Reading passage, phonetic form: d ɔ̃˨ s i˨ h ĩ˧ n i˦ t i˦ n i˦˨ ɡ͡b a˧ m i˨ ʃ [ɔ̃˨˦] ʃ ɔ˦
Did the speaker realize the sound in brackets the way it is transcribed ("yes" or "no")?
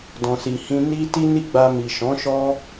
yes